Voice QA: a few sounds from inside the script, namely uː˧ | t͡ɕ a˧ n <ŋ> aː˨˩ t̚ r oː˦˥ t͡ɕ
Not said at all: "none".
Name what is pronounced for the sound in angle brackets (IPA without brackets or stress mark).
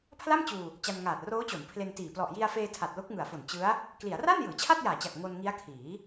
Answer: ŋ